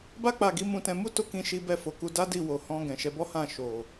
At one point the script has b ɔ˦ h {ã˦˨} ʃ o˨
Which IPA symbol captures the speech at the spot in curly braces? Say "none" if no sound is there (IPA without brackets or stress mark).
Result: ã˦˨